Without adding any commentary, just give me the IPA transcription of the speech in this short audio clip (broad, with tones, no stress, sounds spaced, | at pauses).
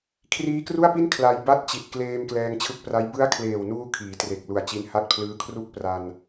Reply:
kʰ r iː˦˥ k r u˥˩ a̯ p i˥˩ n kʰ l a˧ j b a˥˩ t̚ t͡ɕ i˨˩ t̚ k l eː˧ m k l ɛː˧ ŋ t͡ɕʰ ɯ˦˥ k̚ p r a˦˥ j b ɯ˦˥ a̯ kʰ l eː˨˩ w n uː˧ kʰ iː˩˦ t r e˨˩ k̚ l u˨˩ a̯ t͡ɕ i˧ n h a˥˩ t̚ pʰ l ɯː˦˥ kʰ r u˥˩ k̚ p r a˧ n